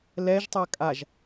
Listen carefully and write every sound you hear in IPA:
l ɛ ʒ tˤ a kʼ a ʒ

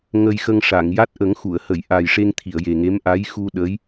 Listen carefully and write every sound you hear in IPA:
ŋ ə˧ j x ə˧ ŋ ʂ a˨˩˨ ŋ j a˦˥ t̚ ʔ ə˨˩˦ ŋ x u˨˩˨ ə̯ h ə˨˩˨ j ʔ a˨˩ j ʂ e˧ ŋ t̪ʰ i˨˩˨ ə̯ j e˨˩ ŋ e˧˥ m ʔ a˧˥ j x u˧ ɗ ə˧˥ j

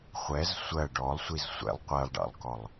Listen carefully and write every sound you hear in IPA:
χʷ ɛ z sʷ ɜ ɖ ɔ lˠ sʷ i z sʷ ɛ̰ lˠ qʷ ɜ lˠ ɖ ɑ̰ lˠ k ɔ lˠ

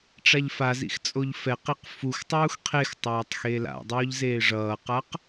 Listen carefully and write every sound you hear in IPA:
ʈ͡ʂ a ʎ f a z ḭ x t͡sʼ o ʎ f ɛ q i q f u x tˤ uː x qʰ e x tˤ aː tˤ x e l a̰ dˤ oː ʎ z eː ʐ ʌː q a q

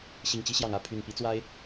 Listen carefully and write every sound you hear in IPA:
ɕ i˨˩ ŋ t͡ɕ i˥ ɕ j ɑ˨˩ ŋ ä˥˩ pʰ y˨˩ n p i˧˥ t͡s w a˥ ɪ̯

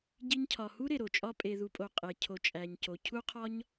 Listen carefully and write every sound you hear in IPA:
ɟ i˧ ɲ cʰ ɒ˨ h u˦ ɾ e˨ ɾ o˨ t͡ʃʼ ɒ˦ pʼ e˧ ð u˧ pʼ o˧ qʼ e˧ cʰ o˧ t͡ʃʼ æ˧ ɲ c o˧ cʰ u˦ qʰ ɒ˦ ɲ

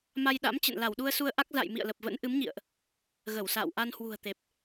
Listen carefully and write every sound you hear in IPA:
m a˧ j ɗ a̰˧˥ m t͡ɕ ə̰˧˨ n l a˧˩ w ɗ u˧ ə̯ s u˧ ə̯ ʔ a˦˥ k̚ z a̰˧˨ j m ḭ˧˨ ə̯ l ə˨˩ p̚ v ə̰˧˥ n ʔ ɨ˨˦ m ɲ ḭ˧˨ ə̯ ʔ | ɣ ə˧˩ w s a̰ː˧˨ w ʔ a˧ n h w ṳ˨˩ ə̯ t̪ e˨˩ p̚

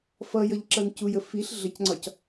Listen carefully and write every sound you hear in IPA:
f ʌ j ʌ ʎ ǁ ʌ n c u j ə f i ɬ ɮ ə c ŋ͡ǀ ɒ c

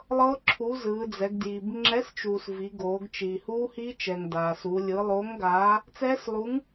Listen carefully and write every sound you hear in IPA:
lˠ ɤ˦˥ ǁʰ u˨˥ z ɯː˩˧ d͡z ɛ˩˧ ɡ d j i˩ b ŋ͡ǁ ɛ˨˥ s t͡ʃ uː˩ s v i˩˧ ɡ oː˩˧ ɡ t͡ʃ i˩ h uː˦˥ h i˦˥ t͡ʃ ɛ˩ ŋ d aː˩ s u˩˧ lʲ ɯ˩˧ lˠ oː˨˥ ŋ ɡ aː˨˥ | t͡s ɛː˦˥ s lˠ u˨˥ ŋ

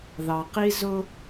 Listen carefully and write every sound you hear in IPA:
ð ɑ˩ q i˦ z ʊ˦

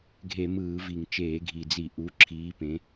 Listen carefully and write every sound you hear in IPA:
ɡʱ e˧˩˧ m ɯː˧˩˧ v i˨˩ ŋ t͡ʃ eː˧˩˧ ɡʱ i˨˩ d͡z i˧˩˧ ʔ u˨˦ ǁʰ iː˨˦ p ẽ˨˦

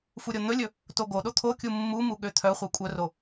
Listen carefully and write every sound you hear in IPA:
f u ɾʲ o n̪ ɵ lʲ ɵ | t o ɡ o ɗ o t̪ʰ o kʲ u mː u m u ɠ ø t̪ʰ œ χʷ ɛ kʷʼ œ r o

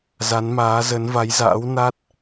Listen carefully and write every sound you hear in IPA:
z a˨˦ n m aː˨˦ z ə˨˦ n v a˨˦ j z a̰ː˧˥ w n a˦˥ t̚

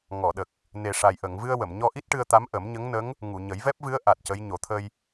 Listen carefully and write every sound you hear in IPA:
ŋ ɔ˨˩˨ ɗ ə˨˩ k̚ | n e˨˩ ʂ a˨˩ j ʔ ə˨˩˨ ŋ v ɨ˧ ə̯ w ə˨˩˨ m ɲ ɔ˧ ʔ i˦˥ t̚ ʈ ɨ˧ ə̯ t̪ a˧˥ m ʔ ə˨˩˦ m ɲ ə˧˥ ŋ n ə˧˥ ŋ | ŋ u˨˩˨ ɲ ə˨˩˦ j v ɛ˦˥ p̚ v ɨ˧˥ ə̯ ʔ a˨˩ t̚ c ə˧˥ j ɲ o˨˩˦ t̪ʰ ə˧ j

